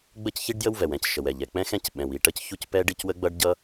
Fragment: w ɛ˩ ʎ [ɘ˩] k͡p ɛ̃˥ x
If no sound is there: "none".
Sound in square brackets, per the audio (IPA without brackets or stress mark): ɛ˩